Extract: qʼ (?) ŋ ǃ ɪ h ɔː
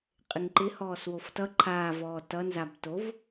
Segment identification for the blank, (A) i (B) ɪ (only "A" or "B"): B